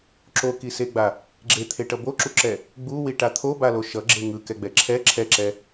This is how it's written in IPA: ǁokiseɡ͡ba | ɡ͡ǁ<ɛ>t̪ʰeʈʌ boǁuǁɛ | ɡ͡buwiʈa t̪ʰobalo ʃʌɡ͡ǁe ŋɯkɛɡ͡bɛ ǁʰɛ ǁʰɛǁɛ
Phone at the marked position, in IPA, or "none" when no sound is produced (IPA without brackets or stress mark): e